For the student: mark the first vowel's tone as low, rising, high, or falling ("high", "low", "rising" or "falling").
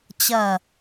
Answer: falling